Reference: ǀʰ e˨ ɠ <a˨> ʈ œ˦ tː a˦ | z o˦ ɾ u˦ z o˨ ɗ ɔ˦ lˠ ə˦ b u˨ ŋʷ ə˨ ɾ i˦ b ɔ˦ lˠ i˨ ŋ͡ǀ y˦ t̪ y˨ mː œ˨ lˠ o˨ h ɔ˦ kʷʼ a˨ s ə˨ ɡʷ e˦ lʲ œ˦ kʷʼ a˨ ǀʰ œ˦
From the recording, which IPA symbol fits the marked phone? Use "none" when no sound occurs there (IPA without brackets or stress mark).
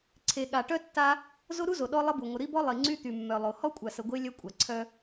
a˨